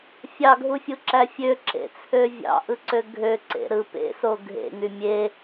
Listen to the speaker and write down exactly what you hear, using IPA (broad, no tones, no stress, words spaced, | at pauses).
fʲɑɡʱufʲuǁæ fʲøǁḛt͡sʰø vʲɑ̰ʔɯǀø ɡʱøǀḛɾɯ pḛso ɡʱḛŋy mʲe